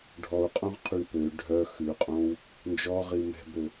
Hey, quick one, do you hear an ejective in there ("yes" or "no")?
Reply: yes